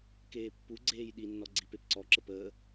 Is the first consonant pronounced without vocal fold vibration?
yes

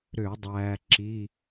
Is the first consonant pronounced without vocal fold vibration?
no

